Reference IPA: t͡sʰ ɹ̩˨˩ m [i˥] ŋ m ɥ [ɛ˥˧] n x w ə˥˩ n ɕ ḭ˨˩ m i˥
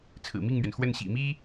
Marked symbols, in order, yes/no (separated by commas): no, no